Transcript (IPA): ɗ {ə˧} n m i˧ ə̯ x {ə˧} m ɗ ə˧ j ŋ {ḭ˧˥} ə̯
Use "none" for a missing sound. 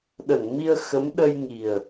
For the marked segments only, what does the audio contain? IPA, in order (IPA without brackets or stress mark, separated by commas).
ə˧˩, ə˨˦, i˨˩